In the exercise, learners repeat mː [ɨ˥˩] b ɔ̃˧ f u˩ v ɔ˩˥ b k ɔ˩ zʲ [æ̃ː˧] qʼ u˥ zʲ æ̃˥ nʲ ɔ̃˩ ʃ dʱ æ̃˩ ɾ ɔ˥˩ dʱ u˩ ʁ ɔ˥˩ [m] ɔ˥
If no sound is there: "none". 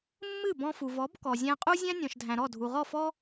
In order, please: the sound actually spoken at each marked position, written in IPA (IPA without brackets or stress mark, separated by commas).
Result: ɨ˥˩, æ̃˧, f